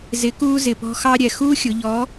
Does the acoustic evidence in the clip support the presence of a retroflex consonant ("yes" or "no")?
no